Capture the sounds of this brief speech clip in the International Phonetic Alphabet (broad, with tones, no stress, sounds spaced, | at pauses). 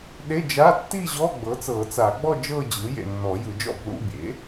ɗ e˧˥˧ d͡ʒ a˧˥˧ tː i˥˧ ʑ ɔ˧˥˧ ɡ͡b ɤ˩˥ t͡s ɤː˨˩˦ t͡s a˨˩˦ ɡ͡b ɔ˥˧ d͡ʒ ɤː˥˧ d͡ʑ ɯː˩˥ j ḛ˨ nː ɔ˨˩˦ j ɯ˨˩˦ d͡ʒ ɔ̰˥˩ b l ṵ˧˥˧ bʲ ḛ˩˥